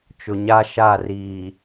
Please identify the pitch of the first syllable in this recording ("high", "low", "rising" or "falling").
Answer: low